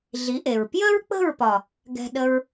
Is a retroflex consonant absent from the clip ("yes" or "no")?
yes